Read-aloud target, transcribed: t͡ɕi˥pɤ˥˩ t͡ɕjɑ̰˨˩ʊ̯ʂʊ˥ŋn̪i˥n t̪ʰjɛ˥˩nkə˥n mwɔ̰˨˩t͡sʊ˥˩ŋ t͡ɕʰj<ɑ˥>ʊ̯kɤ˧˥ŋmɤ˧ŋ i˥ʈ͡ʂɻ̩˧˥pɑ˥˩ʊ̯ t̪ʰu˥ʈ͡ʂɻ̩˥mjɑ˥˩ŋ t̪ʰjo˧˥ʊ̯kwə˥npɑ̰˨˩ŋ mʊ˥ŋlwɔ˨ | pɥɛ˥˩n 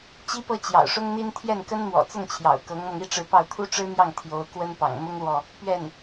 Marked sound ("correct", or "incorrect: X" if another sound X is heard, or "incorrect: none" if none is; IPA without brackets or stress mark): incorrect: ɑ̰˨˩